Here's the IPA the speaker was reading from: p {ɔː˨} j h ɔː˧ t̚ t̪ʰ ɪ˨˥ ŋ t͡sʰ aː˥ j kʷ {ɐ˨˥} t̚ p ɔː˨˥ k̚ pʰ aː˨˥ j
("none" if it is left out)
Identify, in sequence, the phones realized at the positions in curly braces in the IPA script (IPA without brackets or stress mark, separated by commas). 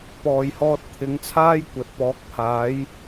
ɔː˨, ɐ˨˥